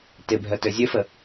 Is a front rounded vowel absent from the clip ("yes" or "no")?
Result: no